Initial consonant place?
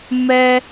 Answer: labial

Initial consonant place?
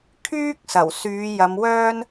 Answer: velar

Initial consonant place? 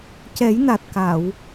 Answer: palatal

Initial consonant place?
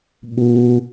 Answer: labial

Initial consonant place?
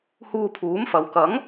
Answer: glottal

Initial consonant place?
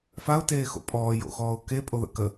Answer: labial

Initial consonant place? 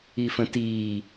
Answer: labial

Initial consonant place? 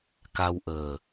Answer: velar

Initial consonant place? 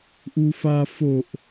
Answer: glottal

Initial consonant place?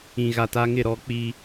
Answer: velar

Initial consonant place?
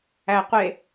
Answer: uvular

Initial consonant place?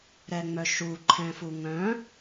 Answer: alveolar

